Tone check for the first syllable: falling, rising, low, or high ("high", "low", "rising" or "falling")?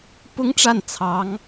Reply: high